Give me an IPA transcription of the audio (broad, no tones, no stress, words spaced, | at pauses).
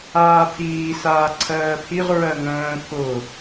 aːpʰiː saːǀʰɜːpʰiʁ ɹɜŋə̃ː pʰʊ